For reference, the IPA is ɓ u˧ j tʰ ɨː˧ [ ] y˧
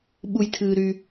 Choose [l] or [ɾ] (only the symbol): ɾ